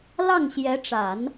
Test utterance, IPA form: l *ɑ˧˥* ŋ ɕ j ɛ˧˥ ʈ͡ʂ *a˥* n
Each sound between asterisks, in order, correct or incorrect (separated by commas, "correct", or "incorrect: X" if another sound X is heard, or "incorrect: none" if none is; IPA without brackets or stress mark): incorrect: ɑ˥˩, incorrect: a˨˩˦